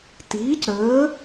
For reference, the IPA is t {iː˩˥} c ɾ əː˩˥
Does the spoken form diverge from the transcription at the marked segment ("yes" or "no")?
no